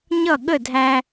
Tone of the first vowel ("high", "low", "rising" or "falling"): falling